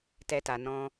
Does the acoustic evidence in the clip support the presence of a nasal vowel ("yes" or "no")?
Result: yes